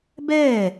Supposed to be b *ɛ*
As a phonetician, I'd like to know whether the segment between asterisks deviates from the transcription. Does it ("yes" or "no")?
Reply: yes